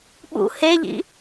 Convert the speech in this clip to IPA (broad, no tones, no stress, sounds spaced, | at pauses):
ɓ ṵ h e ʎ ḭ